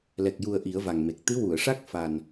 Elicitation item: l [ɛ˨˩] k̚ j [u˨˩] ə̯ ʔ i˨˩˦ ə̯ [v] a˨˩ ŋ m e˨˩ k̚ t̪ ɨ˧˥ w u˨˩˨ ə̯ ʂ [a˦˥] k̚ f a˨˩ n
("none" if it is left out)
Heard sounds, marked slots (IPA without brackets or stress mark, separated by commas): ɛ˨˩, u˨˩, v, a˦˥